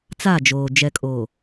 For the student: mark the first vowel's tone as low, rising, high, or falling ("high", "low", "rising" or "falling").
falling